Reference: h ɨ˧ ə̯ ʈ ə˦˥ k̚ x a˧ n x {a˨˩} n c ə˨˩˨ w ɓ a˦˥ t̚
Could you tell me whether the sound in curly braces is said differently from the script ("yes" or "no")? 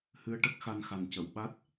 no